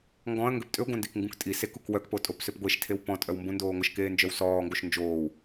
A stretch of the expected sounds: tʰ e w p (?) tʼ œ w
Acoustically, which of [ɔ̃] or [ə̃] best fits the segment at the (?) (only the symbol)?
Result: ɔ̃